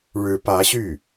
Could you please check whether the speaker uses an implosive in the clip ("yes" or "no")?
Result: no